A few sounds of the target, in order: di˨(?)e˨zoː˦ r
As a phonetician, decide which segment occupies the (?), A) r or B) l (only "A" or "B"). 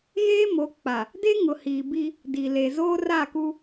B